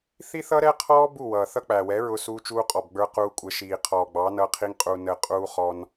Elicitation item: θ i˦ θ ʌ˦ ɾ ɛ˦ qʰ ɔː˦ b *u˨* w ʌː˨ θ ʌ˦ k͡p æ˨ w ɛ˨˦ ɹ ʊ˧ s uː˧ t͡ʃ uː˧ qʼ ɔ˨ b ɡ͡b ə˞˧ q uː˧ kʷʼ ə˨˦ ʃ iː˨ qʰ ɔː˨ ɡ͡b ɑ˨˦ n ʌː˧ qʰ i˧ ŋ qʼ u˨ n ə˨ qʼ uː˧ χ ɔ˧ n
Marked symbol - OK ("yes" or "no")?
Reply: no